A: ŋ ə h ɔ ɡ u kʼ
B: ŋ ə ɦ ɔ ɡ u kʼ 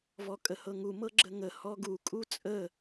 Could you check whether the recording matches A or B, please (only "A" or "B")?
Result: A